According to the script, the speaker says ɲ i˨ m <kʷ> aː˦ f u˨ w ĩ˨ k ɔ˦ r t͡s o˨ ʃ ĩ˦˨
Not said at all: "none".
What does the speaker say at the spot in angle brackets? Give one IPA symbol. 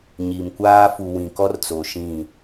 kʷ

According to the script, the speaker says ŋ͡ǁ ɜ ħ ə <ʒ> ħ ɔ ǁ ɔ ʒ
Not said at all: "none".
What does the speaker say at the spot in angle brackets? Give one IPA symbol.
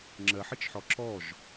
t͡ʃ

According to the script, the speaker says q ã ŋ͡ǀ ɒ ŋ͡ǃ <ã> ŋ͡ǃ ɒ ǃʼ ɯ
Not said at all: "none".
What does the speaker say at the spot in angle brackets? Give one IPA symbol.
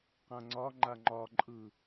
a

